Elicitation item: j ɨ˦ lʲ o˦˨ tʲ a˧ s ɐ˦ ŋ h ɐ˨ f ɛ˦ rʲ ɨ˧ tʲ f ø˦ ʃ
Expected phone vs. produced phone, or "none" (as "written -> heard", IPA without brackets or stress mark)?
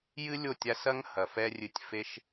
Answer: ø˦ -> e˦